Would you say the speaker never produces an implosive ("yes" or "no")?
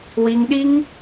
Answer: no